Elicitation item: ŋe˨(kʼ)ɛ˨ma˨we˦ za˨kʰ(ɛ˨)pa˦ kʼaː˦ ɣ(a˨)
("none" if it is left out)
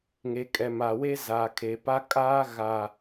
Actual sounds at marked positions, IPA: kʼ, e˨, a˨

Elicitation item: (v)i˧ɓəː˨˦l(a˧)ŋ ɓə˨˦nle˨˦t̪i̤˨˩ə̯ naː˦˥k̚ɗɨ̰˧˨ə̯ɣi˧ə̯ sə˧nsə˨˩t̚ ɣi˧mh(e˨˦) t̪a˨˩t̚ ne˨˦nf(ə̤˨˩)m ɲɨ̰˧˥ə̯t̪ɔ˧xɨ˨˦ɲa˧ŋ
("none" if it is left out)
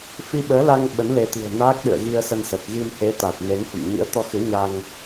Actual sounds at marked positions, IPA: f, a˧, e˨˦, ə̰˧˨

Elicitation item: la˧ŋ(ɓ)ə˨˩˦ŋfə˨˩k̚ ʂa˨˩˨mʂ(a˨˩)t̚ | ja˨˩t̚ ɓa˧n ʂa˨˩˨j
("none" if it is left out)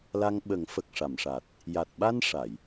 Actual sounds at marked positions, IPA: ɓ, a˨˩

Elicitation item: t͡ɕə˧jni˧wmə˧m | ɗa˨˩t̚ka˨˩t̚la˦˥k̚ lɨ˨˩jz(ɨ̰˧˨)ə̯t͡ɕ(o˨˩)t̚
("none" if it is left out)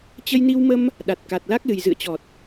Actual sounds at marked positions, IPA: ɨ̰˧˨, ɔ˨˩

